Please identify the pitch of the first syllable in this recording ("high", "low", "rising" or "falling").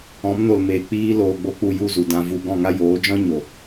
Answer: rising